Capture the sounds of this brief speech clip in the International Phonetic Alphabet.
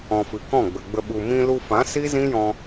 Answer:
ɔ̃˨ f ɨ˨ k ɔ̃˦˨ ɡ͡b ə˨ ɡ͡b ə˧ ɓ u˨ m ĩ˧ l u˧ f ã˨˦ s i˦ z ĩ˦ j ɔ̃˧

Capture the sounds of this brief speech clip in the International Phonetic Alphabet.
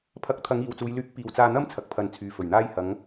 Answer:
pʰ ɐ˨˥ k̚ t̪ʰ ɐ˨˧ ŋ iː˨ w t͡s uː˨˧ j l yː˨˥ k̚ p iː˨ w t͡s aː˧ n̪ ɐ˥ m t͡sʰ ɐ˨ k̚ pʰ ɐ˨˧ n t͡sʰ yː˨ f ɵ˨˩ ɥ n̪ aː˧ j h ɐ˨˧ ŋ

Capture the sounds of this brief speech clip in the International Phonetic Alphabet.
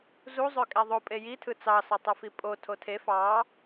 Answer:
z u zˤ ø kʼ æ ðˤ o pʼ e j i tʰ ɯ t͡s ɑ s ɑ tˤ ɯ f i pʼ o tʰ o tʰ e f ɑ

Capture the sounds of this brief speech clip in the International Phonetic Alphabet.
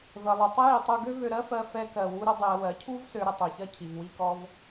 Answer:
v ɜ˩ lˠ u˩ tˤ ə˥ j i˩˧ tˤ u˧ ɡ ø˥ v ø˧ ɾ ɜ˥ f ɜ˧ f ɛ˧˥ k ɜ˩ w u˥ ɾ ə˥ dˤ e˧ ə̯ w ɜ˩˧ cʰ u˥ v s ø˧˥ ɾ ə˧ tˤ ø˩˧ ç ɜ˥ cʰ i˩ v w i˥ k ɔ˥ v

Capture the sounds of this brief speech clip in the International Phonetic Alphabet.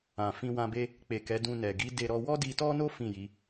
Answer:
ã˨ f ĩ˧ w ã˧ b e˦ | k͡p e˨ k ɛ˨˦ d ũ˧ n ɛ˨ ɡ i˨˦ d e˧ ɾ ɔ˧ w ɔ˦ d i˧ t ɔ˦ n o˦ f ĩ˦˨ j i˨˦

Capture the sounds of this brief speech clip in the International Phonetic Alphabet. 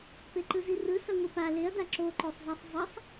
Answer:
p e ǃ ɯ z i r ɯ s ʌ ŋʷ i p a l e ɐ̯ d a ǁ o ǃ o sˤ z a sˤ zˤ ʌ sˤ

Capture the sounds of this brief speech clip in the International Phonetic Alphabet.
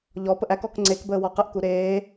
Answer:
ʎ ɔ p ə ʔ æ k ɔ k ŋ͡ǀ e k b əː w ɔ q ə ʔ k u ɾ eː

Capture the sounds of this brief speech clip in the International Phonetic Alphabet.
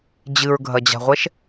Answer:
d͡ʑ ɨ ɹ ɡʱ ɐ d͡ʑ a̤ ʁʷ ɛ ʃ

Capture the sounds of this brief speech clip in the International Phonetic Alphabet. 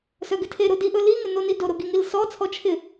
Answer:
s œ ɡ ɪ tʰ e ɾ o d i ʔ ɵ l i ŋ ɪ n o n i d o ɾ o ɡ i ŋ i l s ɔ t͡sʰ ɔ t͡ʃʰ ɪ

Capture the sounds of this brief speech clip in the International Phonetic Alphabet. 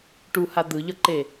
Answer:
ʈ u h a d̪ ɯ ʎ ʌ ǃ e

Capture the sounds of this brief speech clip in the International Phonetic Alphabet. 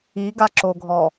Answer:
i ɡ a ǁ o ɡʱ ɔ

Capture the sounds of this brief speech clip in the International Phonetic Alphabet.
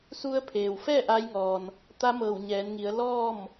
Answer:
s u˧ ə̯ pʰ eː˩ w f ɛː˥˨ ʔ a˧˥ j ŋ ɔː˩ n | t̪ a˧˥ m ɤː˧˩ w ɲ ɛː˩˧ n ŋ i˩˧ ə̯ l ɔː˥˨ m

